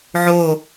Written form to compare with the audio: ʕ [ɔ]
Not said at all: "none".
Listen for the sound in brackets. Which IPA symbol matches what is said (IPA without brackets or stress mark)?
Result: o